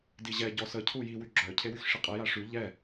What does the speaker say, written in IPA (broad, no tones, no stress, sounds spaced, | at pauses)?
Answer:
d i ʑ ɛ ɟ ɔ s ə cʰ u j i w y ɡ͡ǁ œ cʰ e w y x ʂ i qʼ ɛ j a ʂ y ʎ ɛ